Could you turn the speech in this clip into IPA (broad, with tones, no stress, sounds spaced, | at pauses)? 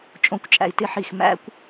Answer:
t͡ʃʼ õ˧ kʷ t͡ʃʼ æ̰˧ i̯ t ɪ˦˨ ħ i˦˨ x m æ̰˦ kʷ